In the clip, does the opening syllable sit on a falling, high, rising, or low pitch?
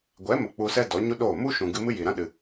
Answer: rising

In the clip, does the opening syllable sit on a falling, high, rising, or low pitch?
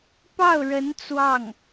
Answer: falling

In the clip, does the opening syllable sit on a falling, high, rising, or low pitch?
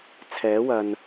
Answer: rising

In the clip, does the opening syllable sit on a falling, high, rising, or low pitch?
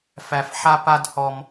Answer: low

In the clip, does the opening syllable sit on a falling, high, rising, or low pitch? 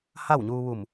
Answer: falling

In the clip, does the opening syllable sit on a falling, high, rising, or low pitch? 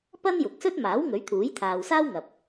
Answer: high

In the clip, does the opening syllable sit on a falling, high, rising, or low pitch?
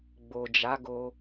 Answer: low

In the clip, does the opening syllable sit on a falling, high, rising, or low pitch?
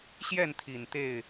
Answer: falling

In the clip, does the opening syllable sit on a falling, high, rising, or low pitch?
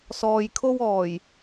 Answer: low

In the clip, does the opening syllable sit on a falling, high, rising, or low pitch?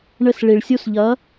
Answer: falling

